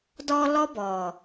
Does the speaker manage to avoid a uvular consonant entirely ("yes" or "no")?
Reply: yes